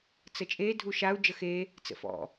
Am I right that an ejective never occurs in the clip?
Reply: no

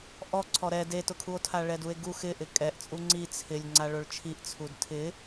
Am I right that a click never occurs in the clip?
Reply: no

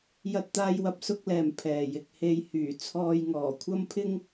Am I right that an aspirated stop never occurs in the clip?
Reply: no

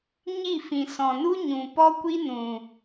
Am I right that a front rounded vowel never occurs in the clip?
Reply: yes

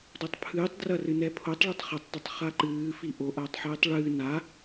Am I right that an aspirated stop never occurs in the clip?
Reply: no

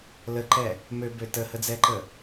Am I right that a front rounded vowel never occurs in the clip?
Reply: no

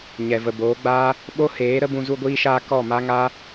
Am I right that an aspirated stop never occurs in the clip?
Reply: yes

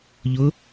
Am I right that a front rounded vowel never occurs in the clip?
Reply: yes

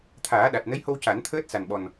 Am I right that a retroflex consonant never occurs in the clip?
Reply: yes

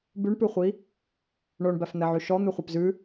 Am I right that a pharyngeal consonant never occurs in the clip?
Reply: no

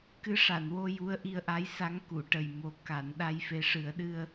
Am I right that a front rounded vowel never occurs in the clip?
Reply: yes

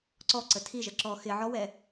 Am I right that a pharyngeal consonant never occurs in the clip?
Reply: no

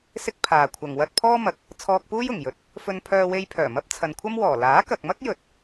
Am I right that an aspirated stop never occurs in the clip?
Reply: no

